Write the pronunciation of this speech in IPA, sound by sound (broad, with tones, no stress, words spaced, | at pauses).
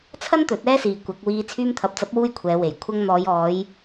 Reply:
t͡sʰɐ˥nt̪ɵ˨˥t̚ ɛː˥siː˨kʷɐ˨˥k̚ wiː˧ t͡sʰyː˧mt̪ʰɐ˨p̚t͡sɐ˨˥p̚wuː˧j kʷʰɛː˨˧we˨j kʷʰɐ˧ŋn̪ɔː˨˧jɔː˨˧j